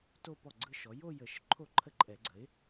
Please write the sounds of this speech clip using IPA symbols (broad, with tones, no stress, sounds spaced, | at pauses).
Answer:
t o˥˧ p ɔ˥˩ ɡ͡ǀ ɯ˥˧ ʃ ɔ˩˥ j o˥˧ j ə˨˩˦ ʃ ǃʰ o˥˩ ǃʰ ə˥˩ ǃʼ ɛ˨˩˦ ɡ͡ǀ ə˩˥ ɪ̯